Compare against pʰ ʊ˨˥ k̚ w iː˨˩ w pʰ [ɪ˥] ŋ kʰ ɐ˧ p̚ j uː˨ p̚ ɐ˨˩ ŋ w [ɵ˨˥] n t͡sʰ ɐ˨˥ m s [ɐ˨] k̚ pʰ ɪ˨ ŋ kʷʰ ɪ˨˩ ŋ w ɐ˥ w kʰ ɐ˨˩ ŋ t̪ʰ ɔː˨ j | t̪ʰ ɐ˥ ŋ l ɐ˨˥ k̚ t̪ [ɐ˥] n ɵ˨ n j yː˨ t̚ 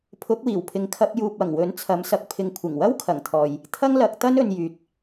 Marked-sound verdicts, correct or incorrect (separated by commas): incorrect, correct, correct, correct